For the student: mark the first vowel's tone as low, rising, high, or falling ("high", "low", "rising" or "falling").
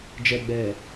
low